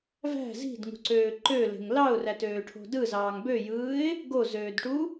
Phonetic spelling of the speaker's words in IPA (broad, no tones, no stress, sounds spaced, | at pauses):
v æ̤ z i̤ d ŋ ṳ ǀ øː ǃ ø l e̤ ŋ l ɑ ʊ̯ r æ t øː ʈʰ o̤ d ɯ z ɑː ŋ b ø j ɯː ɪ̯ | ɡ o z øː d ʈ u